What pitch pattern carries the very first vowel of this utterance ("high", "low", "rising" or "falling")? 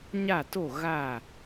falling